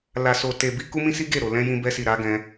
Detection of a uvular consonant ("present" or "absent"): absent